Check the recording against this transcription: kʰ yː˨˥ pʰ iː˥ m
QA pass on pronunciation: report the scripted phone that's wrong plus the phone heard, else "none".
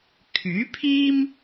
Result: none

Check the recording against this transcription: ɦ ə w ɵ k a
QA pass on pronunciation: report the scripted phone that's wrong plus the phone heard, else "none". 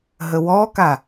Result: ɵ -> ɔ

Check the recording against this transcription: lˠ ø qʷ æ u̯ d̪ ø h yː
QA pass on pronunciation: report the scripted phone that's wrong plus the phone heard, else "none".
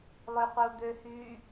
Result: æ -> ə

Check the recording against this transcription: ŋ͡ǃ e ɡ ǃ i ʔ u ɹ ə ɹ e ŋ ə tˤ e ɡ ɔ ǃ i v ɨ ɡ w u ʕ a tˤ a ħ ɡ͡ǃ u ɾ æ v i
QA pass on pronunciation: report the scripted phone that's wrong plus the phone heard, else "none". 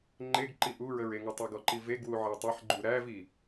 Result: ɨ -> e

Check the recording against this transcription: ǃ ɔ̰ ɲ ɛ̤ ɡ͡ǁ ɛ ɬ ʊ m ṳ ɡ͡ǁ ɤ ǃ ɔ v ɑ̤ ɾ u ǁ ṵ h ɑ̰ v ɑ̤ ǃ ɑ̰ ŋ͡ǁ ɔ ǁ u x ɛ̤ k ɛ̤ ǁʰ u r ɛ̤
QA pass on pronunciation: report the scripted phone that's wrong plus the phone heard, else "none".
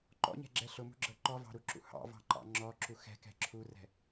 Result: none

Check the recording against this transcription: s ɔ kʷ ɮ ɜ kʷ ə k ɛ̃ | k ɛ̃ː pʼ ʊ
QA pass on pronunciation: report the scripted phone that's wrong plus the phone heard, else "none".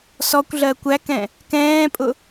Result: ə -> æ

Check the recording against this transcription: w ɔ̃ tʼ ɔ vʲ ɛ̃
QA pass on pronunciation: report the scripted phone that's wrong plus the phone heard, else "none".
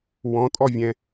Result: none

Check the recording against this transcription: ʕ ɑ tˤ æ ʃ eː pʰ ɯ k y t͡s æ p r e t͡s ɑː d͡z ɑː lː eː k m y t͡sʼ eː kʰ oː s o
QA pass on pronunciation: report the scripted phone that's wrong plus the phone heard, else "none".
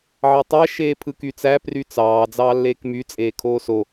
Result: e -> y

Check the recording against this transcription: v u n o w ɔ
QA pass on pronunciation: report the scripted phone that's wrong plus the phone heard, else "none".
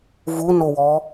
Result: none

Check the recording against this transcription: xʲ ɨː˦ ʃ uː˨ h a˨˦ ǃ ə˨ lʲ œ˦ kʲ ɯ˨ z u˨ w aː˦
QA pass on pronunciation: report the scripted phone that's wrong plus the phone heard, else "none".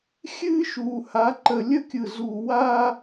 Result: œ˦ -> ə˦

